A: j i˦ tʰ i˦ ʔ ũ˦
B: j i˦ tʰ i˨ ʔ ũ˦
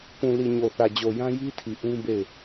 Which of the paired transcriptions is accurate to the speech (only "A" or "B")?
B